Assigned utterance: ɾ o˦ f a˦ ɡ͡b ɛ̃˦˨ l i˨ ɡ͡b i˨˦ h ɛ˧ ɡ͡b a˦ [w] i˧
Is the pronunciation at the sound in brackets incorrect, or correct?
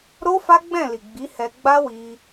correct